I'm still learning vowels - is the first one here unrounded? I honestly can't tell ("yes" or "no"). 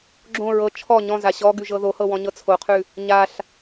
no